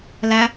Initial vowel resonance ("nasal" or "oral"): oral